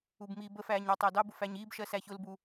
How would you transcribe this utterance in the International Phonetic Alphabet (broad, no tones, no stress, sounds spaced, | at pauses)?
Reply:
u b m iː b ə f æː ɲ ɑ tˤ æ d ɑ b ʊ f æ ɲ iː b ʃ ɜ s æ ç ʊ l b u